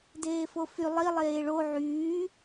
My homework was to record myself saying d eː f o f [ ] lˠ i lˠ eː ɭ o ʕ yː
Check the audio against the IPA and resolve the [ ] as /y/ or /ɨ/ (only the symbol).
y